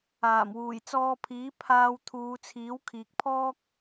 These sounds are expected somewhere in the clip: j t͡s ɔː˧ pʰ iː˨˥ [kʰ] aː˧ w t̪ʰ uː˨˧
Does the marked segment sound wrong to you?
yes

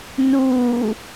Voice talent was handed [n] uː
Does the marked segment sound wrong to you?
no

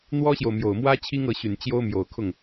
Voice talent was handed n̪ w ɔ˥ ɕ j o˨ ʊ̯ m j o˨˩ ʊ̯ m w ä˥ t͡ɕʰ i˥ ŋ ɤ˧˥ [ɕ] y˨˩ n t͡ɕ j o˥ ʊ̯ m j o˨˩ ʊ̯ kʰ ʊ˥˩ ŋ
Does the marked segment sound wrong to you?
no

